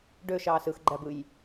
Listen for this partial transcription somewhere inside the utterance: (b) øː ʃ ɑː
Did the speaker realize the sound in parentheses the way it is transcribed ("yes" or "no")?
no